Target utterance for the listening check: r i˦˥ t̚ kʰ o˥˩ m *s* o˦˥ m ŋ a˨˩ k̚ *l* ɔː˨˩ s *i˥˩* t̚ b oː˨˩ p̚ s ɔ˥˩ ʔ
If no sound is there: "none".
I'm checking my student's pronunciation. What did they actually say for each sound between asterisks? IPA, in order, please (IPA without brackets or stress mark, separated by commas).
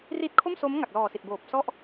s, l, i˨˩